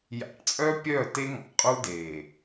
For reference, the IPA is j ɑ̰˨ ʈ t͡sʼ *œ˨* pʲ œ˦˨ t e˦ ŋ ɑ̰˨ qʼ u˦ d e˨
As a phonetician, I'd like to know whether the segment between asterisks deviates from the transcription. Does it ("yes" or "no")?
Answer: yes